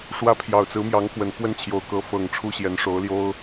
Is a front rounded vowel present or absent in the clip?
absent